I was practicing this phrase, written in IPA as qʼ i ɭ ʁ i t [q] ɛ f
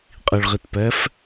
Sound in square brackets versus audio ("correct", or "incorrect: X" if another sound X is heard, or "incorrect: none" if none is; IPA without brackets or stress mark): incorrect: p